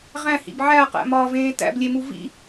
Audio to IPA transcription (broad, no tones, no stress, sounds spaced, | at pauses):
ʁ æ̃ h ḭ b ʕ æ ɐ̯ q æ̰ m ɒː v ẽː t æ̰ b lʲ e m u v ḭ